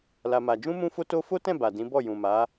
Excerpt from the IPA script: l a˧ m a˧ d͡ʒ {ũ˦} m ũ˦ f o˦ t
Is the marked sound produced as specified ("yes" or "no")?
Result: yes